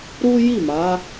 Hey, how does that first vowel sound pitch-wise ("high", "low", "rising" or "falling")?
high